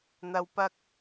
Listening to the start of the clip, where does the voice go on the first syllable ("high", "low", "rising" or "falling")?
low